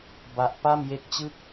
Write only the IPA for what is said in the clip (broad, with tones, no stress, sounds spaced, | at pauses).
b a˦˥ ʔ p a˥˩ m j e˦˥ k̚ t͡ɕ ɯ˥˩ k̚